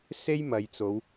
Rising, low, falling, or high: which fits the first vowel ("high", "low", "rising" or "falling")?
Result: high